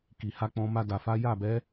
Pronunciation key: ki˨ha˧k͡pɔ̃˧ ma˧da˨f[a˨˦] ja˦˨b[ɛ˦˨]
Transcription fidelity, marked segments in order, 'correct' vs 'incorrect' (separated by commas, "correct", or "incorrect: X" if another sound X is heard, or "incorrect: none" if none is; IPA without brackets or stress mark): correct, incorrect: ɛ˨˦